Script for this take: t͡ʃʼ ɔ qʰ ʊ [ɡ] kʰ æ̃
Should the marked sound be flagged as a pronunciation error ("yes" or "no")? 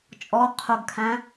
no